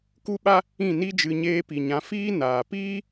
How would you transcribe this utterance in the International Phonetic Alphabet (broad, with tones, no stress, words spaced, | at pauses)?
ku˦ɓa˦ | ĩ˦˨ni˦d͡ʒɨ˧ ɲeː˧pi˨ɲã˨˦ fiː˦naː˨ piː˦